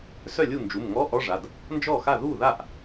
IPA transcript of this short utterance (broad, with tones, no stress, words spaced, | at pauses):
sœ˥˩lʲu˥˩nd͡ʒu˩˧˩m ŋɔ˧˥˧ʔɔ˧˥˧ʐa˩˧˩d | nd͡ʒɔ˥˩xa˥˩ ðu˥˩ða˥˩ʔ